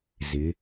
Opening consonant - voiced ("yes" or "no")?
yes